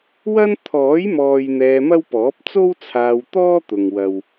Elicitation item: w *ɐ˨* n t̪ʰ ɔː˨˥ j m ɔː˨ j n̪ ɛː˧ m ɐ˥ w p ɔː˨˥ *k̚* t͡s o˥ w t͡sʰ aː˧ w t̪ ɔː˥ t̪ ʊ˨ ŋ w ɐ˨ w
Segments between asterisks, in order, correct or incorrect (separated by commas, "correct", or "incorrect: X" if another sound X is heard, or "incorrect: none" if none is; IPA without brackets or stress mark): incorrect: ɐ˥, incorrect: p̚